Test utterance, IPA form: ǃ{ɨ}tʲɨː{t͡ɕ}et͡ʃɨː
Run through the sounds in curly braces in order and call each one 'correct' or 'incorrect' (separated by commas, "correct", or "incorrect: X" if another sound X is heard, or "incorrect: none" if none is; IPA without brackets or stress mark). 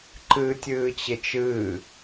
incorrect: ɨː, correct